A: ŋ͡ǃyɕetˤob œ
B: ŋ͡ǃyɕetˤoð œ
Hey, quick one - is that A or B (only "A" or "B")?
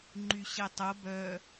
A